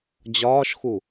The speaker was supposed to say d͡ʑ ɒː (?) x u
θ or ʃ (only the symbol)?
ʃ